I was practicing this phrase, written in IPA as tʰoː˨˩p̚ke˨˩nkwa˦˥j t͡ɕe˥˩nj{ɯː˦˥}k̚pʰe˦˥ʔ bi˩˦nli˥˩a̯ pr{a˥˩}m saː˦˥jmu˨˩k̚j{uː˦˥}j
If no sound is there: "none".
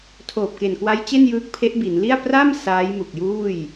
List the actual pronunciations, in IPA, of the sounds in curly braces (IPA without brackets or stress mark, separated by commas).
ɯː˦˥, a˥˩, uː˥˩